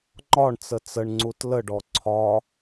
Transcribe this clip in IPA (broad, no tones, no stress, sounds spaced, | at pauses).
ŋ͡ǃ ɒ ɳ t͡s ə t͡s ə ɳ ŋ͡ǀ u t l ə ɖ ɔ ǀʰ ɒ